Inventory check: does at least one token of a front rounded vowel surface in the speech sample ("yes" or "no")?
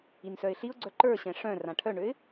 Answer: yes